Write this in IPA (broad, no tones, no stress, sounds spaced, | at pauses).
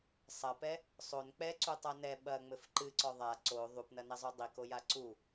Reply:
sˤ ɐ p ɛ | sˤ o n k͡p ɛ ǀ u tˤ a n ɛ ɓ ɐ ŋ͡m ɘ f ǃ ɨ ǀ ɔ ðˤ a ǀ o ðˤ u p n ɐ n ɛ zˤ u dˤ i k o j a ǀ u